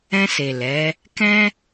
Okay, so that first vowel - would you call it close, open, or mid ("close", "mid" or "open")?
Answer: mid